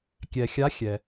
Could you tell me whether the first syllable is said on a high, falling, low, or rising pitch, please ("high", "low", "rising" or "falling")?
low